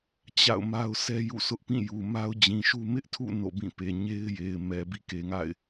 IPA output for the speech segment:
t͡ɕa̰˦˨ʊ̯ma˦ʊ̯ sɛ˦jṵ˦˨sʊ˦ʔpĩ˦˨ ju˨ma˦ʊ̯d͡ʑĩ˨ʃu˦ mɪ˦ʔtʰṵ˦˨ no̰˦˨bĩ˦˨pe˨ ɲe˦ɪ̯je˨ɪ̯ mɛ˨ bḭ˦˨ke˨ŋa̰˦˨ɪ̯

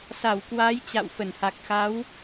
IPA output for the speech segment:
sa˧˩wkwa˨˦j t͡ɕa̰˧˨wfə˧˩n ha˨˩k̚xa˨˦w

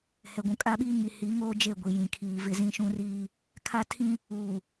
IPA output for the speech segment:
hɛ˨ɡʷũ˨kʼa˦ɓiː˦ ŋi˨hi˨˦ŋoː˦ d͡ʒe˦˨ɡʷi˨ jĩ˨kʰiː˨vɪ˦ zĩ˦ʃũ˦riː˦ | kʰa˦tʰĩ˦ | uː˨

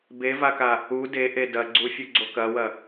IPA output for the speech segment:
bevaka | u deʔe dɐɡ͡ǀufʲuɡ͡ǀo kɐwɐ

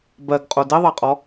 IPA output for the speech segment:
bɜɡqʼo diðˤɜqʼɔ

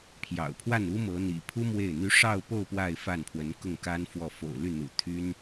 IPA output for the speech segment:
pʰjɑ̰˨˩ʊ̯pʰwa˥˩nu˥ mɤ˧˥n̪ḭ˨˩ pʰu˥ mwe˥˩ɪ̯n̪y˥ ʂɑ˥˧ʊ̯po˥˧ʊ̯ pwa˥˧ɪ̯fa˥˩npʰwə˧˥nkʊ˥˩ŋ ka˥nfwɔ˥˩ fo̰˨˩ʊ̯ly˥˩n̪ṵ˨˩ t̪ʰy˥n

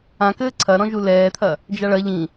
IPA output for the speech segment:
ãkɘː ǀʰɐɾɔ̃ ʒulɛːt̪ʰɐ | d͡ʒaɭɐ ʎĩ

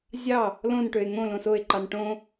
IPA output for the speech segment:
zʲɑ | lõnʈøe̯ ŋõ lõsoe̯ǃɑn ʈõ

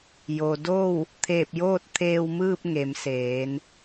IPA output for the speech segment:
jo˩do˥˨w | t̪ʰeː˧˩p̚joː˥˨t̚t̪ʰeː˧w mɯː˥˨p̚ŋe˩˧m seː˩˧n

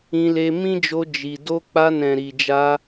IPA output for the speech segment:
ĩ˧le˧ mĩ˦d͡ʒo˧ d͡ʒi˨ do˧k͡pa˧nɛ̃˨ ɾi˨d͡ʒa˧

